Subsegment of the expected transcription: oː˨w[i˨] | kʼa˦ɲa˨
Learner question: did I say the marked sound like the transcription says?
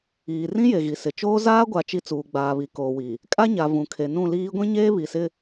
yes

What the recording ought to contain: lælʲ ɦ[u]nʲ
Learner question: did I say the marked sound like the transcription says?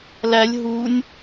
yes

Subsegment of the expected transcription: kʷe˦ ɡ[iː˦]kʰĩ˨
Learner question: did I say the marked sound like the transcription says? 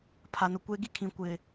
no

